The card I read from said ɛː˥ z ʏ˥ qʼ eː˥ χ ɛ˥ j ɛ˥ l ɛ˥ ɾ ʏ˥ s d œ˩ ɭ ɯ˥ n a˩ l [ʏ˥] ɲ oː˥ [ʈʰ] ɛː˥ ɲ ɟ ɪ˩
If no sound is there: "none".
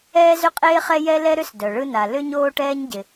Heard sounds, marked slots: ʏ˥, ʈ

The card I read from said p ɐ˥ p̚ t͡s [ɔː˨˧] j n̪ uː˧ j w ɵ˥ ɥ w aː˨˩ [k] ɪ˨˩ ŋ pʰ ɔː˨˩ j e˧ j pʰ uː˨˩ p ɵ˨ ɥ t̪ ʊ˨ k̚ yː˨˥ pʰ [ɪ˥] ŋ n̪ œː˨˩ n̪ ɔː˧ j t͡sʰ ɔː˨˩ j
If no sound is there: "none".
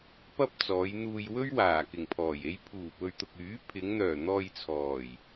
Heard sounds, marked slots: ɔː˨˧, k, ɪ˨˧

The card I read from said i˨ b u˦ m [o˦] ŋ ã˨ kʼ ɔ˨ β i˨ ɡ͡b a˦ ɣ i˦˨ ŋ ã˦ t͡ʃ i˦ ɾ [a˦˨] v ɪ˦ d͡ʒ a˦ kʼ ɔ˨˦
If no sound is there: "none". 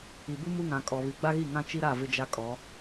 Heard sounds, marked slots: u˦, a˦˨

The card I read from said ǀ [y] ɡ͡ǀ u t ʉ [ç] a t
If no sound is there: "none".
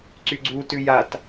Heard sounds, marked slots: y, j

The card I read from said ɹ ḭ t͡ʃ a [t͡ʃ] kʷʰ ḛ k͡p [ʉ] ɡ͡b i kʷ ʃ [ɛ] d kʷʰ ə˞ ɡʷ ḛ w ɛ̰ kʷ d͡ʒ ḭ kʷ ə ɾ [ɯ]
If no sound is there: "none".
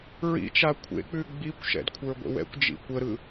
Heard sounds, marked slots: none, ʉ, ɛ̰, ɯ

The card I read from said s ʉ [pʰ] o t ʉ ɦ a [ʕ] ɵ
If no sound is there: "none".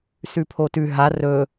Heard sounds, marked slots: pʰ, r

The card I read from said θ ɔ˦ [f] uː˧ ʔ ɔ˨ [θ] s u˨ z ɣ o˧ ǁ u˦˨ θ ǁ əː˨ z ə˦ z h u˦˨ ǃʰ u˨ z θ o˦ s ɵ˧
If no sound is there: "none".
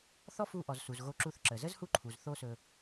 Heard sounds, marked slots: f, z

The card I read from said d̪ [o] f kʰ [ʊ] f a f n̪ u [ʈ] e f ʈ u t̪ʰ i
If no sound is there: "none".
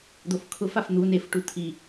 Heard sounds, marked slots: o, ʊ, n

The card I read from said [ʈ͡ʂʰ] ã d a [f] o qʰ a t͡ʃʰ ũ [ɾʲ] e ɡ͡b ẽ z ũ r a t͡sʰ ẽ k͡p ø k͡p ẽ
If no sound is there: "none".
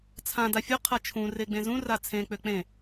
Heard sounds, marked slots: t͡sʰ, fʲ, r

